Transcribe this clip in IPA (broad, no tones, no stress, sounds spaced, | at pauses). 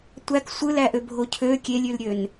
tʷ æ k sʷ ɯ l æ ʔ ø bʱ o cʰ ø kʲ e lʲ y l ɾʲ ø n